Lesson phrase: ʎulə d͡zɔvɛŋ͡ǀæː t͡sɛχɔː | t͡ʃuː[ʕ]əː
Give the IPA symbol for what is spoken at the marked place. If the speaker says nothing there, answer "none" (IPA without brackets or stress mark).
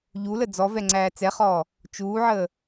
ʕ